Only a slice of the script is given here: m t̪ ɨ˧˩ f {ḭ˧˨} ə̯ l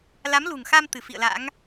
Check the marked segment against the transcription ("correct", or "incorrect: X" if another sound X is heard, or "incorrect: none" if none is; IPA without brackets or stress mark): correct